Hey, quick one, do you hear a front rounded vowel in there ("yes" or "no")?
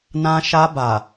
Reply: no